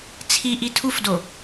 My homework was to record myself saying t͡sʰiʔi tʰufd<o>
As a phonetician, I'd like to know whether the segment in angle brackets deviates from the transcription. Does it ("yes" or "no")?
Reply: no